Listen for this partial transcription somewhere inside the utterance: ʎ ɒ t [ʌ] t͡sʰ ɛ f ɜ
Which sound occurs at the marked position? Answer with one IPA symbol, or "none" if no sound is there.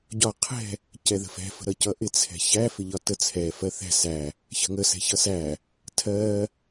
ə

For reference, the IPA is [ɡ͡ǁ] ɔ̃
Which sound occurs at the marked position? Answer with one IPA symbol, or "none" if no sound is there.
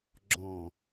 ɡ͡ǁ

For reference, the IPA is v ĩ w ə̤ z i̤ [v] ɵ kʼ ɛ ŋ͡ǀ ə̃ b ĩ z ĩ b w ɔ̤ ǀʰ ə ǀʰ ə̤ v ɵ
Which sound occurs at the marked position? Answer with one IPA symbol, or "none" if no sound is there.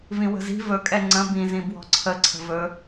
v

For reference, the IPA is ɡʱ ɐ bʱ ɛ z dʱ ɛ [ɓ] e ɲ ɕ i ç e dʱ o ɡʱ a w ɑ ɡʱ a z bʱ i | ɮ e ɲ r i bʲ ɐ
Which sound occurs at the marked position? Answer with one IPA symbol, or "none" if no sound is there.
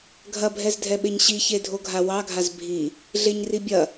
ɓ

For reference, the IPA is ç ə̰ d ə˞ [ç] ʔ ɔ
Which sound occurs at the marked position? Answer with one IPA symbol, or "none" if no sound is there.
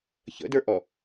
none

